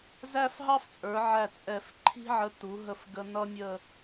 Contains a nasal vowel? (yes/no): no